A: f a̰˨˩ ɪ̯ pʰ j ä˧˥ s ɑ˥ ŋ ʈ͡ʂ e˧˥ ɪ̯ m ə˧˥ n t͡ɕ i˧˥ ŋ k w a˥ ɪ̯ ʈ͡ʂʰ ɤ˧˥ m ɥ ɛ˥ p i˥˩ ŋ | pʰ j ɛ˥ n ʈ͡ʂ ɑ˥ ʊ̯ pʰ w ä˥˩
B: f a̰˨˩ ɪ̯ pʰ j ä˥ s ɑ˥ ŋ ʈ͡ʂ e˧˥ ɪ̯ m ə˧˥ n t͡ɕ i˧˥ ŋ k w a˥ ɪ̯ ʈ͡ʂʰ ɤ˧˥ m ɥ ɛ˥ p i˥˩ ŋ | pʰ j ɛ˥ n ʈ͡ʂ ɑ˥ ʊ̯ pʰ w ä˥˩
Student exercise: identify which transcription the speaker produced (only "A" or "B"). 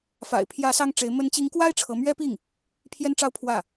A